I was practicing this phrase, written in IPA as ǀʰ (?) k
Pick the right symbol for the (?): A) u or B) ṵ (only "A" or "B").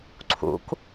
B